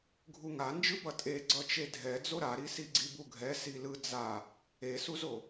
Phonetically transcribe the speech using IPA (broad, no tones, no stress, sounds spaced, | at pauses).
ɡʱ u ŋ a n d͡ʒ ɯ b ʌ tʼ e ɡ͡ǀ ʌ t͡ʃ e dʱ ɛ d͡z o ɾ a ɾ i s i ɡ͡ǀ i b u ɡʱ ɛ s i l ɯ d͡z a | e s u z o